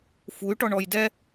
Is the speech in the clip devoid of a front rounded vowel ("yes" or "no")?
no